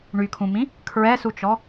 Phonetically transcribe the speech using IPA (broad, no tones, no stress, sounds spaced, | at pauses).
ɳ y kʰ ũ m ĩ | kʰ ɹ ɛ s u t͡ʃ ɔ